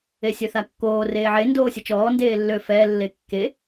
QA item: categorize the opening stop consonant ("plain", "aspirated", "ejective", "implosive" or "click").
plain